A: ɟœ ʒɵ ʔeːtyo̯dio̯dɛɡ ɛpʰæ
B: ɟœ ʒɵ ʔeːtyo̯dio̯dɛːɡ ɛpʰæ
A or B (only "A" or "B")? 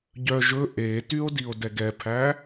A